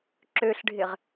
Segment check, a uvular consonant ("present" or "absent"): present